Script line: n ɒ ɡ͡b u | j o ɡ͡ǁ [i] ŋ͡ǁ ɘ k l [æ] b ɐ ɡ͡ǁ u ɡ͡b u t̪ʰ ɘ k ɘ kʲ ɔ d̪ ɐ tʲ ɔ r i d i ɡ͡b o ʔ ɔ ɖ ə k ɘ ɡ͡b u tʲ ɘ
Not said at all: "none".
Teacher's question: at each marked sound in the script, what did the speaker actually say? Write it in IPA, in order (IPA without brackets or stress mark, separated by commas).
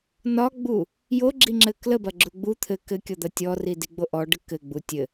i, ə